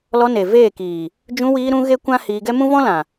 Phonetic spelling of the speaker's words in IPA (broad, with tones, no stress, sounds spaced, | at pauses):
l ɔ˧ n e˨ v eː˦˨ k iː˨ | d͡ʒ ũ˧ w iː˧ ɾ ũ˧ ɣ e˦ kʷ ã˦ h iː˧ ɡ ɛ˦ m ũ˦ v ɔ̃˦ l ã˨